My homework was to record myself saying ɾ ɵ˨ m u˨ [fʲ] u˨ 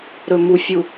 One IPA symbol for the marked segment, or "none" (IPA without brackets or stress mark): fʲ